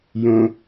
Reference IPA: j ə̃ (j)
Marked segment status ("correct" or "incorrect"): incorrect